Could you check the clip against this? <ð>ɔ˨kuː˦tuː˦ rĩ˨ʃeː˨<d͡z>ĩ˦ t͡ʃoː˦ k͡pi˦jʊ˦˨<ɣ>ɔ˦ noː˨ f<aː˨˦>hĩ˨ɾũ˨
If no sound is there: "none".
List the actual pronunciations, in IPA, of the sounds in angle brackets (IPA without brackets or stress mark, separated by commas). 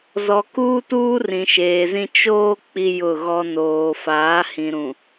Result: z, z, ɣ, aː˨˦